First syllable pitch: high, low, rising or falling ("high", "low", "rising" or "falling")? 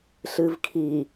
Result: low